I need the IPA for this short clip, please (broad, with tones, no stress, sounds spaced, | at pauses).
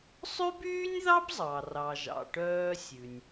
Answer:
sˤ ʉ˥ b yː˥ nʲ ð ɑ˥ b zˤ ɑ˩ r ɑ˩ ʒ ɑ̰˩ ʈ œː˧ sʲ ʉ˩ nʲ